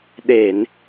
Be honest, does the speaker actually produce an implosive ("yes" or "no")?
yes